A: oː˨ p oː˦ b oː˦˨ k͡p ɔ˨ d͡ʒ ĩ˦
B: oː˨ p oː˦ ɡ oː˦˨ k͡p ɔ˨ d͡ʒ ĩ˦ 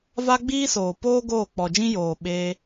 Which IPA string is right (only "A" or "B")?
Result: B